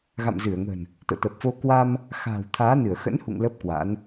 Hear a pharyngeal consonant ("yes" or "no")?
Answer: no